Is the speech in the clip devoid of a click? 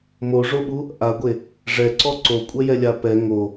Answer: no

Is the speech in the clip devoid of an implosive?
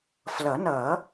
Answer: yes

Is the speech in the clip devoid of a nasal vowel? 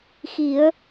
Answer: yes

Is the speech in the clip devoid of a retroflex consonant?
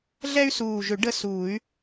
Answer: no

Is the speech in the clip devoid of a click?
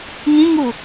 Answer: yes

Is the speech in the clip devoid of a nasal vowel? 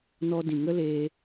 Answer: no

